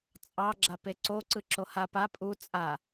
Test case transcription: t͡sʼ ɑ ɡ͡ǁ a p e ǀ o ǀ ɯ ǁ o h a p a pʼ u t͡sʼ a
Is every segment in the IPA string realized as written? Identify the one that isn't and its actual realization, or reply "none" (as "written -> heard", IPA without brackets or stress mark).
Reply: none